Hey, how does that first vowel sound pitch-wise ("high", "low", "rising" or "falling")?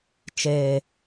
low